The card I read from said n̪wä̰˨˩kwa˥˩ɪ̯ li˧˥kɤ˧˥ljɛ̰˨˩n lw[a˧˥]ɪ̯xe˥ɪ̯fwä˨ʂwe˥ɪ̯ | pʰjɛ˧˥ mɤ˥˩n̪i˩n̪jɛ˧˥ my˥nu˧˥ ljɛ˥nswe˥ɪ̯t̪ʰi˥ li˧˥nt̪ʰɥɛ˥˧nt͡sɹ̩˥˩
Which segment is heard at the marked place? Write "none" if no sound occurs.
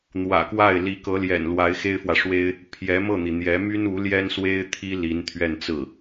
a˧˥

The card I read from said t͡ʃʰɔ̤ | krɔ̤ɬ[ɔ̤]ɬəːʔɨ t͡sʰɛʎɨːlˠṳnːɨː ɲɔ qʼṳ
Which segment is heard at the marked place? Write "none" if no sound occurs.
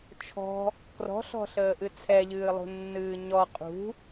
ɔ̤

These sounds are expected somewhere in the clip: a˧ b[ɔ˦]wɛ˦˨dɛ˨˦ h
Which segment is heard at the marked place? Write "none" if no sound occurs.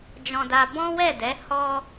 ɔ̃˦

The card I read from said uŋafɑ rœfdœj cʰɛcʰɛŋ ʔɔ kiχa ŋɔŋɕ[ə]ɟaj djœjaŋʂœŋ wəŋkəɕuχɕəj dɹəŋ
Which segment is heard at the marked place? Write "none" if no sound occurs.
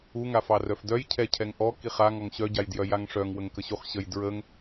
œ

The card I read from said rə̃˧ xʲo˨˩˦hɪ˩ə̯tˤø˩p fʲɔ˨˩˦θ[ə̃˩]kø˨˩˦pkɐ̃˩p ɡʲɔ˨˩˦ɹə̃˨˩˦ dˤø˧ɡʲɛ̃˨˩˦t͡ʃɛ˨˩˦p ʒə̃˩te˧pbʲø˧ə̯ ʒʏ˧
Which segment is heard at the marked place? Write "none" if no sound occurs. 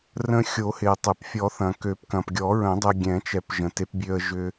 ɐ̃˩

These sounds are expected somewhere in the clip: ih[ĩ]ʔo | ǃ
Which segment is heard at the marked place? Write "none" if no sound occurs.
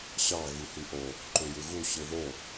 i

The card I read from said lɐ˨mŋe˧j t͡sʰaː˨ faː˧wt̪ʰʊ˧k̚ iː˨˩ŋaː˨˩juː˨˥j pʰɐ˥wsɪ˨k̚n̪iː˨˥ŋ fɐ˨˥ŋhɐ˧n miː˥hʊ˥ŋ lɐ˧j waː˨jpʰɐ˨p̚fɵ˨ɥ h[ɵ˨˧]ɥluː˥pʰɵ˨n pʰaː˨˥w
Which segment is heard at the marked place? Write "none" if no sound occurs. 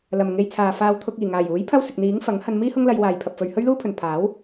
ɵ˥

